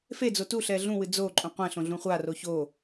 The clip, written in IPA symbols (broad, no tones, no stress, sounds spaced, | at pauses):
f e d͡z o t u ɬ ɛ ɮ ũ w ɨ d͡z o ǃʼ ũ qʷ ɛ̃ ɬ õ ɮ ũ χʷ a r o ç o